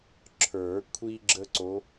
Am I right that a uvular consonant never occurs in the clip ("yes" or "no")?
yes